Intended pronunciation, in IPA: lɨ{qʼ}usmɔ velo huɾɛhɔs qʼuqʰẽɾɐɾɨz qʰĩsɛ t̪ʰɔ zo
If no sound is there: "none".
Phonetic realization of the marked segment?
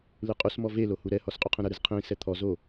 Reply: qʼ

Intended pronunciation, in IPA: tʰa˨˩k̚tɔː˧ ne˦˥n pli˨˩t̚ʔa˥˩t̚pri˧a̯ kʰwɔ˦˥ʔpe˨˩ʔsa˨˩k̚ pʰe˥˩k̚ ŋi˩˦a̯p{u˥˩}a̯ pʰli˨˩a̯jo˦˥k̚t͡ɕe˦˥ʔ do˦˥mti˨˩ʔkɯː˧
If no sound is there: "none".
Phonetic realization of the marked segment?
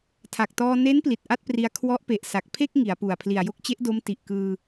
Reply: u˨˩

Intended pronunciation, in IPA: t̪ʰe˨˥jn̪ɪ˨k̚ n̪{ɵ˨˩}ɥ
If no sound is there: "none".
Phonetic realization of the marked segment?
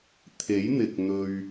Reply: ɵ˧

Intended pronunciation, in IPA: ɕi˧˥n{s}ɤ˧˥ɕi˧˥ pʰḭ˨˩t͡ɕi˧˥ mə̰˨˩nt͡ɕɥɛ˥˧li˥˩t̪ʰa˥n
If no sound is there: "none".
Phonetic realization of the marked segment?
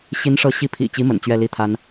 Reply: ʂ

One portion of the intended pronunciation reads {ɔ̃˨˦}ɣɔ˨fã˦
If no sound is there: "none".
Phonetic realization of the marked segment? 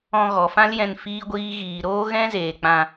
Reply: ɔ̃˧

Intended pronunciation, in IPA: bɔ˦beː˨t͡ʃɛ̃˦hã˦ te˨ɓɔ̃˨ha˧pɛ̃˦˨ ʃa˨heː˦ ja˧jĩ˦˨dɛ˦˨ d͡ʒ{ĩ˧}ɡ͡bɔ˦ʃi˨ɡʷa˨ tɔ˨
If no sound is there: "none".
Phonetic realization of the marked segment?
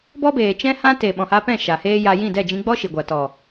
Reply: ĩ˧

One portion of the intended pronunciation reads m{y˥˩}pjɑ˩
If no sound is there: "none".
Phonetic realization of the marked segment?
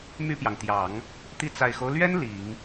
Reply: y˥˩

